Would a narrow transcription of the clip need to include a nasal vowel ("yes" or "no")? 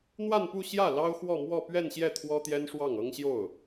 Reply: no